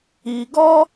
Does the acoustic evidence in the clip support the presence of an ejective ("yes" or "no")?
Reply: no